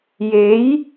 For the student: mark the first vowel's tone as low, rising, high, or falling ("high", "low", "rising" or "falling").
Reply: rising